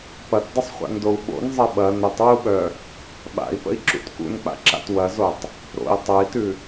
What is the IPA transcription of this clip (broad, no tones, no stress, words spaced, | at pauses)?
pɐtdˤəsˤχʷa̰ndou̯ ɓo̰nzˤɐ ɓɐ nətˤwuɓœ | ɓa̰i̯pə̰i̯ǁṵt kṵnk͡pa̰ǁa̰t wɐzotˤ | ɾo̰i̯ tˤœi̯tʉ